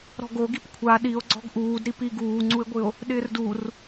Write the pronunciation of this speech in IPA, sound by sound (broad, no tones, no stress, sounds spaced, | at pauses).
ɾ ɔ̤ ɡ o ɡ i p kʷʰ a ɗ i o̯ ɡ͡ǀ ɔ̤ ɡ ʔ uː d ɾ i p i ɡ uː ŋ͡ǀ u e̯ ɡʷ ɪ o̯ | ɗ ɪː r d u r